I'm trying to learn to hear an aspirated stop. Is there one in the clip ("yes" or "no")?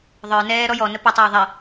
no